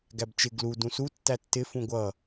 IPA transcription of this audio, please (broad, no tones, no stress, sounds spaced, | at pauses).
ɡ æ b t͡ʃ ɪ ɡ l u d ũ s u tː æ tː ɪ f ũ ɡʷ ʌ